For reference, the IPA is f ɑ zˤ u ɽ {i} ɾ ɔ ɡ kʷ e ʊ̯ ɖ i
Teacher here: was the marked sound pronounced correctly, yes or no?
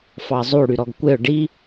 no